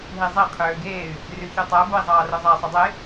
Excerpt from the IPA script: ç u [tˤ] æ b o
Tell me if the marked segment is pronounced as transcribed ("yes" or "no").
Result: yes